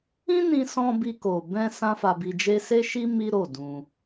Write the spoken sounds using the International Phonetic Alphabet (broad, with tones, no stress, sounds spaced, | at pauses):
ĩ˦ n ĩ˧ s ɔ̃˧ b i˧ k o˨ b ɛ̃˧ s ã˦ f a˧ b i˧ d͡ʒ e˦ s e˦ ʃ i˦ m i˦ ɾ o˦˨ d ũ˧